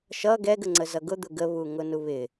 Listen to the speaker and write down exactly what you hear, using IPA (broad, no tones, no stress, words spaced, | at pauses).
ʃʌ ɡɛɡ əŋ͡ǀəzʌɡʊ d̪ʊɡə βuŋʊnuβɪ